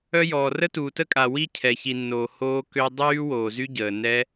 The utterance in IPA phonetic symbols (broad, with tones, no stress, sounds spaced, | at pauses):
œ˦˥ j ɔː˨ r ə˦˥ t uː˨ t ə˦˥ kʼ a˨ w i˦˥ cʰ ɛ˨ ç i˨ nː oː˨ h oː˦˥ k ø˦˥ dˤ yː˦˥ w oː˨ z y˦˥ ɟ əː˨ n ɛ˦˥